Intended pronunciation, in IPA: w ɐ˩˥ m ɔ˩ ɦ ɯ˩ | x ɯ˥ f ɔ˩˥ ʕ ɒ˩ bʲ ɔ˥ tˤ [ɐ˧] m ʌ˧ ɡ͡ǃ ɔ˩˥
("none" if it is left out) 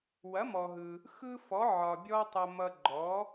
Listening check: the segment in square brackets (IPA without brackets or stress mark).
ɐ˧